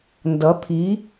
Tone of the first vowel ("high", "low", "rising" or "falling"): rising